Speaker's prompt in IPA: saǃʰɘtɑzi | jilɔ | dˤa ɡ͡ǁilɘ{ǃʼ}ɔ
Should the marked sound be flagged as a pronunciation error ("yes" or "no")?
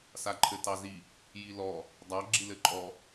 no